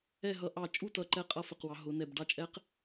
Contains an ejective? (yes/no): yes